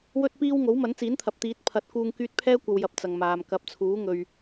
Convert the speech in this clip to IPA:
w ɵ˥ t̚ p iː˥ w ŋ o˨˥ w m ɐ˨˥ n t͡s iː˨˥ n t̪ʰ ɐ˨ p̚ t̪ iː˨˥ t̚ pʰ ɐ˨˥ t̚ k uː˧ ŋ k yː˧ t̚ pʰ ɛː˥ kʷ ɐ˨ w j ɐ˨ p̚ t͡s ɐ˨ ŋ m aː˨ m k ɐ˨˥ p̚ t͡sʰ uː˨˥ ŋ ɵ˨ ɥ

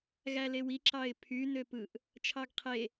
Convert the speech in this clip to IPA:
ɣ æ l e w i ǁ ɑ ɪ̯ pʰ y n ø p ɯ ʔ | t͡ʃʰ ɑ ɡ qʰ e

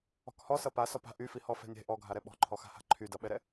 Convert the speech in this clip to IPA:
ɔ̤ k h ɔ s ʌ p a s ɔ p a̤ ʔ y f i h ɔ f ɛ̤ nʲ ɛ̤ ʔ ɔ ɡʱ a ɾ ɛ ɓ ɔ̤ ǃʰ ɔ x a̤ h a̤ ǃʰ y d ʌ ɓ ɛ ɾ ɛ

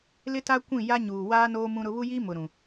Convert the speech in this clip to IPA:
l ɪ˦ t a˦ kʷ ĩ˦˨ j a˦ ɲ uː˨ w aː˦ n oː˦ m ũ˦ ɾ ʊ˦ β u˦ j iː˦ m ʊ˨ ɾ ũ˨

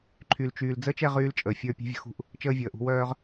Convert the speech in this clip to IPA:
ǃʰ y˨ l t͡ʃ yː˨ l d͡z əː˦ t͡ʃ ɛ˦˨ ʁ yː˦ l t͡ʃʼ əː˨ fʲ ə˞˦˨ pʲ ɛ̤˦ vʲ ə̤˦ x ṳ˦˨ ʔ | t͡ʃ əː˦ vʲ əː˨ ʔ ṳ˦ w œː˦ ʁ

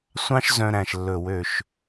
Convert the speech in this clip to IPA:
sʷ ɑ̃˥ ʃ z œ̃˧ ɾ æ̃˧˩ ʃ lː ɵ˧˩ w ø˧˩ ʃ

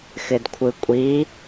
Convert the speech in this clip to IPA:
x ɪ d kʷʰ ɯ kʷʼ i

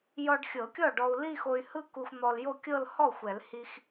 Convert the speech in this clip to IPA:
j ɔ˧ ɖ xʲ ɤ˨˩˦ kʲ ɔ˥˩ ɖ ɔ˧ u̯ l i˥˧ x o˧ y̯ h ɯ˥˧ k u˧ x n̪ ɔ˧ l j o˥˧ kʲ ɤ˥˧ l h ɔ˥˩ xʷ ɛ˨˩˦ l h i˧ x

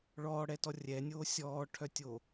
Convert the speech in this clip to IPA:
ɭ ɔː ɽ ɛ t ɔ rʲ ɛ nʲ oː sʲ ɔː ʈʰ œ tʲ o

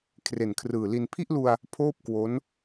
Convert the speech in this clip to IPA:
kʰ r e˨˩ n kʰ r ɯː˨˩ l i˧ n pʰ i˥˩ ʔ l u˧ a̯ | pʰ oː˥˩ p̚ k w o˦˥ n

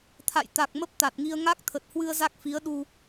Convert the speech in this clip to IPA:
t̪ʰ a̰˧˨ j t̪ a˨˩ k̚ m ə˦˥ p̚ t̪ a˨˩ t̚ ŋ i˧ ə̯ ŋ a˦˥ k̚ t̪ʰ ə˨˩ t̚ h w ɨ˧ ə̯ z a˦˥ k̚ f i˨˦ ə̯ ɗ u˧

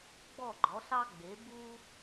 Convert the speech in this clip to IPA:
ɡ͡b ɔ˧˩ ɡ͡ǃ ɔ˩˧ ɬ ɑ˧ ɡ͡b e˩˧ b u˧

